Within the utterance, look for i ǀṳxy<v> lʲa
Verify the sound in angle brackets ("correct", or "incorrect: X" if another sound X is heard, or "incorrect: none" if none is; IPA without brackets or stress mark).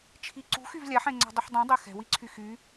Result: correct